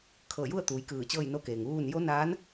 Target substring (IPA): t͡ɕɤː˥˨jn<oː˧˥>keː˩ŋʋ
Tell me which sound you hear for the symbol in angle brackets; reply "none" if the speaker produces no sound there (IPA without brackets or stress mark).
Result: o˧˥